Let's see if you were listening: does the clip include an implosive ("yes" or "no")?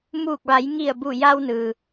no